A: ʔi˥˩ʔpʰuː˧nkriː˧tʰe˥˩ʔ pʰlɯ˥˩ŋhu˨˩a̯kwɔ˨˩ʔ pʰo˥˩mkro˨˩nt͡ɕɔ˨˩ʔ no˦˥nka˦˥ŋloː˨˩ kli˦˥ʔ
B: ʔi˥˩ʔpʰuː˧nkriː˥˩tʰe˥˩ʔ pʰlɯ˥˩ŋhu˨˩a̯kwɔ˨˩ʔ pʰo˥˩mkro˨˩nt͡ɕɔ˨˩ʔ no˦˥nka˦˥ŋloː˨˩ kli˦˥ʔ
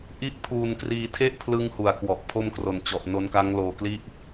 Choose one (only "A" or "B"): A